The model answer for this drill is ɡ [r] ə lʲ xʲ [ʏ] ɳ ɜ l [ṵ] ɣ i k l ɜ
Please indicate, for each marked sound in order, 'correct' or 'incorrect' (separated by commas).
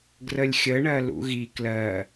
correct, incorrect, correct